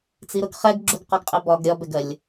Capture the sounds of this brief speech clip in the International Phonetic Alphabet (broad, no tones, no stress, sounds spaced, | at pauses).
t͡s i ɾ ʊ ɡ χ ɛ ɡ ɡ͡ǁ u ɡ q ɔ ɡ qʼ ɪ b ɒ ɡ ɾʲ ɒ b ɛ ɡ ɜ lʲ